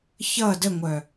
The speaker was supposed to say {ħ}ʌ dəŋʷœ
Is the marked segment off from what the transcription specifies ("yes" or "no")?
yes